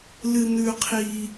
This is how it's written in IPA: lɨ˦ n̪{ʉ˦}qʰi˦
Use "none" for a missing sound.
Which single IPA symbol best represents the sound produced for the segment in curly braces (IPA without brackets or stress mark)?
ʉ˦